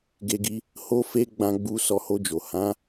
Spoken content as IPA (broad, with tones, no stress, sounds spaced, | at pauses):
ɡ e˧ ɡ i˧ | h o˦ f e˦ ɡ͡b ã˧ ɡ͡b u˧ s ɔ˧ h o˧ d͡ʒ o˨ h ã˨˦